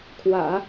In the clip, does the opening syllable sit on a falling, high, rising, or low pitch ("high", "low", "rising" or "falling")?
low